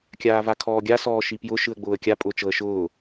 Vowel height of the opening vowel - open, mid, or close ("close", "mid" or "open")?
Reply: open